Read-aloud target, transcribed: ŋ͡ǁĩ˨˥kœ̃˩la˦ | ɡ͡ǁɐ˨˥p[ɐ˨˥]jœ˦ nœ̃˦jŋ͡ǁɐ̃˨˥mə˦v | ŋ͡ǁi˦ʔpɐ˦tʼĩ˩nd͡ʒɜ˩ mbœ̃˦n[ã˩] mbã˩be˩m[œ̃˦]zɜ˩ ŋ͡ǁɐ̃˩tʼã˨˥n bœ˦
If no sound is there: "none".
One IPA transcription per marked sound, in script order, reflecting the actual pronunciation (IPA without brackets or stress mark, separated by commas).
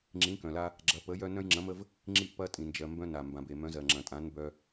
ə˨˥, a˩, œ̃˨˥